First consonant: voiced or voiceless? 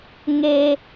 voiced